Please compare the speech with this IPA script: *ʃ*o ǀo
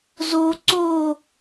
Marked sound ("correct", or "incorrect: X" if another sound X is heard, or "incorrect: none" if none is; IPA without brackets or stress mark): incorrect: z